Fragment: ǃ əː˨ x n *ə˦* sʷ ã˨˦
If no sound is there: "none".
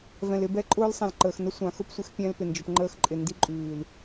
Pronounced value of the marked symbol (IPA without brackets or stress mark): ə˦